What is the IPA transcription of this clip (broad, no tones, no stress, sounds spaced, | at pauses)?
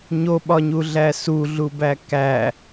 ɲ o ɓ ɒ ɲ u ɮ æ s u ɮ u b æ k æ